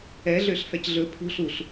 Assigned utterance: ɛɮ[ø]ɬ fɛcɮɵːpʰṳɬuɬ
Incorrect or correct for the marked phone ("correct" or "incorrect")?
correct